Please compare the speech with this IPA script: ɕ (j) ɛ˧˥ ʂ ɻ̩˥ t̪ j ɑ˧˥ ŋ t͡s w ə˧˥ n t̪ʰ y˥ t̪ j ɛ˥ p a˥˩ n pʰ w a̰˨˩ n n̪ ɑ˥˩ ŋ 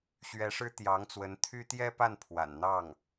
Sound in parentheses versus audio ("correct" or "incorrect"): incorrect